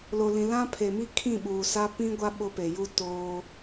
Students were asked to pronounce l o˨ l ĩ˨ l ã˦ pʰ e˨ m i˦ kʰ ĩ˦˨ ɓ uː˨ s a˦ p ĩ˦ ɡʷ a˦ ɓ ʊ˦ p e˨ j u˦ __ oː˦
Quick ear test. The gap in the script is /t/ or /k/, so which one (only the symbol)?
t